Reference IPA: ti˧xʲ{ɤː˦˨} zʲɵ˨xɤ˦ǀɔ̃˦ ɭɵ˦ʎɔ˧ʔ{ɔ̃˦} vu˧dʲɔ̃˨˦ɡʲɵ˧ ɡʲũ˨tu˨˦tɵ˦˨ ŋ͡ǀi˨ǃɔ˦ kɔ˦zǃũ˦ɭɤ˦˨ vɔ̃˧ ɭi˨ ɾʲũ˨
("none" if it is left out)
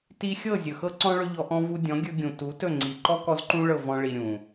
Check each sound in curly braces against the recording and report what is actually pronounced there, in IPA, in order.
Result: ɤ˦˨, ɔ̃˦

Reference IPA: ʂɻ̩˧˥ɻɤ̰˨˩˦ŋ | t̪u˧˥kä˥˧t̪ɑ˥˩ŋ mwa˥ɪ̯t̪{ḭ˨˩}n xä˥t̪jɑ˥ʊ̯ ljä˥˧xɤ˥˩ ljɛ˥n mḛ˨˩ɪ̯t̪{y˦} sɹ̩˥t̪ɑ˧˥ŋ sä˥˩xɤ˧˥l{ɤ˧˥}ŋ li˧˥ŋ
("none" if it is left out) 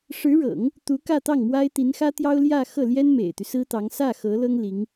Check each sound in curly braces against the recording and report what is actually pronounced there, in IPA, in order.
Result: i˧˥, y˦, ɤ˥

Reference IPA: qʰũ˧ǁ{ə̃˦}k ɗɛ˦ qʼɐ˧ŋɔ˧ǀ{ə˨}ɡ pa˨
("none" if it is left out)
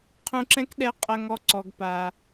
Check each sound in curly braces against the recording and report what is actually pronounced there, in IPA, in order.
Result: ɛ̃˦, ɔ˨

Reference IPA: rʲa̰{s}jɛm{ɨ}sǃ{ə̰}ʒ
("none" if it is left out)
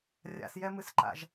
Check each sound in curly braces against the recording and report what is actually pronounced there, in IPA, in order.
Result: s, ɨ, a̰

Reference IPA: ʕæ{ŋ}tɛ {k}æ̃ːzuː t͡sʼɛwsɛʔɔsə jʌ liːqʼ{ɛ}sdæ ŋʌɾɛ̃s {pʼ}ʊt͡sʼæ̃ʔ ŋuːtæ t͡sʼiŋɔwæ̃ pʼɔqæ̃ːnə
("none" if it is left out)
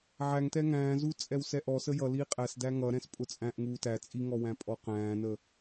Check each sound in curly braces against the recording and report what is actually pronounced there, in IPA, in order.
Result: ŋ, ŋ, æ, pʼ

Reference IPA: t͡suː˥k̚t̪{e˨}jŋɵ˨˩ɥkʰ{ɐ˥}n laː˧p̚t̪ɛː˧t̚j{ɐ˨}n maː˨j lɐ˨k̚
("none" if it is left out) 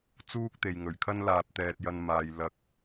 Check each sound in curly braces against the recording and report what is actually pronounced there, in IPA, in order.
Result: e˨, ɐ˥, ɐ˧

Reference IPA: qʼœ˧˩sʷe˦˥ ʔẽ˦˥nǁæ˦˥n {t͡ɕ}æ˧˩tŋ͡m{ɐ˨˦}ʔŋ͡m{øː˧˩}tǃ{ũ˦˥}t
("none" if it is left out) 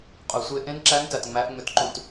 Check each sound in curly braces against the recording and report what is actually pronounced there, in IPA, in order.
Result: t, æ˨˦, ø˧˩, ũ˧˩

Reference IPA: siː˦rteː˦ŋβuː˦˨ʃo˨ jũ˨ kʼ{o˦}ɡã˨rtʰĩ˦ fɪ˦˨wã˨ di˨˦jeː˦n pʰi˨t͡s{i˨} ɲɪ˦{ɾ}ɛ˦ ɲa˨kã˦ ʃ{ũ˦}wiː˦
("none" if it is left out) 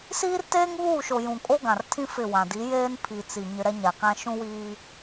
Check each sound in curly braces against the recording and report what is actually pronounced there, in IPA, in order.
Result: o˦, i˨, ɾ, ũ˦

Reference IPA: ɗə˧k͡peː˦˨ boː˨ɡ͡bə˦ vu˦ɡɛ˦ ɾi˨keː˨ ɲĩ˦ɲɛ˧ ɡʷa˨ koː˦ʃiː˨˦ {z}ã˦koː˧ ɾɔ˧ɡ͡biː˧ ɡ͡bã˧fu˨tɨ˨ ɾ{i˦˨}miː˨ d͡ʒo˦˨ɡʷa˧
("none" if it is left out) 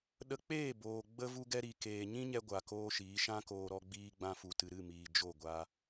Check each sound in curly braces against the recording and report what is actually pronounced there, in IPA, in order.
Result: ʃ, ɨ˦˨

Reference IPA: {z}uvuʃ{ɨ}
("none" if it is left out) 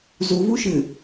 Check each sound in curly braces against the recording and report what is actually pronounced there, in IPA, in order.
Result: z, ɨ

